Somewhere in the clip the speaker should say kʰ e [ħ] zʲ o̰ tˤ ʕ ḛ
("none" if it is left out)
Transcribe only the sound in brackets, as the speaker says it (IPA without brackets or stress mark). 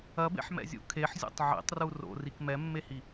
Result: ħ